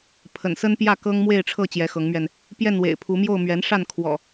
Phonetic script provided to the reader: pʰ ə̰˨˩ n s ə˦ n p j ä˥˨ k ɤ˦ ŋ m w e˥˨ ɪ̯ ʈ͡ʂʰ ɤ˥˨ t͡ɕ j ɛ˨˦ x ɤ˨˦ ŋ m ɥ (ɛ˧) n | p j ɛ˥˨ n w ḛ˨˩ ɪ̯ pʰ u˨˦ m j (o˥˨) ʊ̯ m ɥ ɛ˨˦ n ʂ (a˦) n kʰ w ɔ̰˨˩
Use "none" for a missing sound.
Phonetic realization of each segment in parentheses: ɛ˧, o˥˨, a˥˨

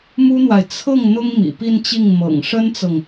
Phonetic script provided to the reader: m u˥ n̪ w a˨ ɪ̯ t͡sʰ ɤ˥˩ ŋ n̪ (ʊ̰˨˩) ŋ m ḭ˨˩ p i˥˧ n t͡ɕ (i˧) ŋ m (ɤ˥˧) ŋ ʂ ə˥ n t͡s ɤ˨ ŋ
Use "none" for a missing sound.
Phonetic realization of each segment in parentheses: ʊ˥, i˥˩, ɤ̰˨˩

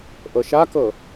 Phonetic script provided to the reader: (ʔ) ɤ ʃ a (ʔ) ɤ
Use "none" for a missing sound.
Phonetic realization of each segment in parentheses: ʔ, k

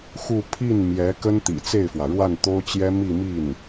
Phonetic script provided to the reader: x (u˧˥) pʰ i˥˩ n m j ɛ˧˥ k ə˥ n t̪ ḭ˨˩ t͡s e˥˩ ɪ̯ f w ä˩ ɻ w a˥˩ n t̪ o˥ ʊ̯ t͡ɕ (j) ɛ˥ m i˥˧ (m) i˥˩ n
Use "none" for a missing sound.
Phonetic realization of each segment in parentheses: u˥˧, j, m

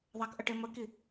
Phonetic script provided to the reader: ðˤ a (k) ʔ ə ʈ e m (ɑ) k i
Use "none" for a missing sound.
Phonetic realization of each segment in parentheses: k, ə

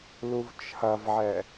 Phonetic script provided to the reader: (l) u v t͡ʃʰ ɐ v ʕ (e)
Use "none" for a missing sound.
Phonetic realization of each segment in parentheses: l, ɛ

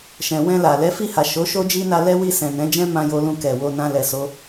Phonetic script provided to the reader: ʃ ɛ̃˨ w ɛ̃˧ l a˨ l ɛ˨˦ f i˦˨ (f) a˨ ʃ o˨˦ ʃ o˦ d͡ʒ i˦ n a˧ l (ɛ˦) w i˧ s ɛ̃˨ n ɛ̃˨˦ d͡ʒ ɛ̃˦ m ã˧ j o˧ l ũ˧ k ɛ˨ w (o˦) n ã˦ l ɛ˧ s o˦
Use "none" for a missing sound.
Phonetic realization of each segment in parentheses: h, ɛ˦, o˧

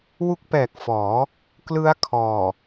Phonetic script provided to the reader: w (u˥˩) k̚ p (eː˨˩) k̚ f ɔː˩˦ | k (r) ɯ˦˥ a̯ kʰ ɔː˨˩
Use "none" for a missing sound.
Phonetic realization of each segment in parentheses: u˦˥, ɛː˨˩, l

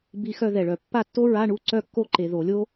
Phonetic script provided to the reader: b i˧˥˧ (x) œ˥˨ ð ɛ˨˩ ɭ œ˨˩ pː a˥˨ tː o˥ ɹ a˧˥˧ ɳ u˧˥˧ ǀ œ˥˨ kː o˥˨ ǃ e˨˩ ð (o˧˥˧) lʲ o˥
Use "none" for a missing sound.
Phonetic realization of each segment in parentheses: x, o˧˩˧

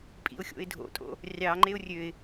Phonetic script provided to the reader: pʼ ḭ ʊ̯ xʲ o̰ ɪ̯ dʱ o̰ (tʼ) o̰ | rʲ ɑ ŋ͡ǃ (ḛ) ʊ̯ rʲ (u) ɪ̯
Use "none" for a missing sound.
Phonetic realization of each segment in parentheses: tʼ, e, ø

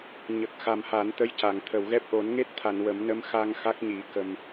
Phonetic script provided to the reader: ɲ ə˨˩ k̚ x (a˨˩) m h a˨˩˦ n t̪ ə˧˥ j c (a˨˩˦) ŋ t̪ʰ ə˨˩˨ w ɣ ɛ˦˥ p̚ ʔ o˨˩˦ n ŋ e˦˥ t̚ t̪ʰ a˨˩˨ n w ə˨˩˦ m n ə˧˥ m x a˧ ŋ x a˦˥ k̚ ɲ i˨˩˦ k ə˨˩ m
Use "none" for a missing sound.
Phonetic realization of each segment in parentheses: a˨˩, a˨˩˨

